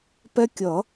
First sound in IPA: p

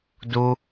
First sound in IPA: d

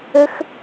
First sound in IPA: ɘ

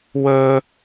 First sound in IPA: w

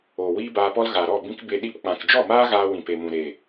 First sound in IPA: oː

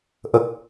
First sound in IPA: ʔ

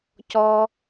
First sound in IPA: c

